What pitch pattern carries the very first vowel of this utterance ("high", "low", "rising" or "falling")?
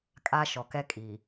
high